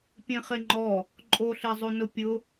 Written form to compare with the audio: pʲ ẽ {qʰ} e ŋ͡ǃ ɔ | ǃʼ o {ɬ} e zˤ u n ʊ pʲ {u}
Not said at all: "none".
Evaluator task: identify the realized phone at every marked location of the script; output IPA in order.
χ, ɬ, ʊ

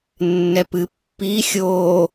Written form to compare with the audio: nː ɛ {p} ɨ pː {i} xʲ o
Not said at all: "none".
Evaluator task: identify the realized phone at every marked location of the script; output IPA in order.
p, i

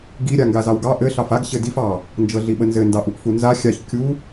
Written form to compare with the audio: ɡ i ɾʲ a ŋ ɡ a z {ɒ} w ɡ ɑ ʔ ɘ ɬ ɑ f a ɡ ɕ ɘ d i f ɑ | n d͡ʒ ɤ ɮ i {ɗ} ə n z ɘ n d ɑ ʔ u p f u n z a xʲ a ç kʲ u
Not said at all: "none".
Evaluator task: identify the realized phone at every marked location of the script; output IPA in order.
ɑ, ɓ

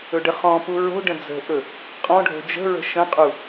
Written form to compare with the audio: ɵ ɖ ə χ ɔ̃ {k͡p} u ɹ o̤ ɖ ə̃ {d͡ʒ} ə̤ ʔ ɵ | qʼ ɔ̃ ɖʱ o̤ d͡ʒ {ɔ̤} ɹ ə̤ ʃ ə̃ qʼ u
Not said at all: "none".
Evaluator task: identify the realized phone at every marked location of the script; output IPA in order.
p, d͡z, ə̤

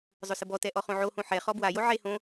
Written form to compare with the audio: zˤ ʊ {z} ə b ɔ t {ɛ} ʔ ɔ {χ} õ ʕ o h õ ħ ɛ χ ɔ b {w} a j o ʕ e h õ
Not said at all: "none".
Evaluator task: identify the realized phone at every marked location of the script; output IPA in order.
s, ɛ, χ, w

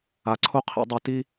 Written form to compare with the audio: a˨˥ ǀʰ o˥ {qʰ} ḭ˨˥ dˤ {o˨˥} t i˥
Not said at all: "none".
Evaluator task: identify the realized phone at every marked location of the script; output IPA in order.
qʰ, o˨˥

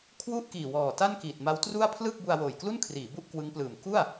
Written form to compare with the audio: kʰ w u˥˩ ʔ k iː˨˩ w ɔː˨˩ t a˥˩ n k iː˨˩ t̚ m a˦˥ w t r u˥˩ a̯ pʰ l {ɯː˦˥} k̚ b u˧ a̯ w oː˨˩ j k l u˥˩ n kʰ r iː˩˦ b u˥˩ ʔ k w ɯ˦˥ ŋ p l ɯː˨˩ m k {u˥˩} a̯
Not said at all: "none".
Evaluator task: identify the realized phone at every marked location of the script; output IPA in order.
ɯː˥˩, u˥˩

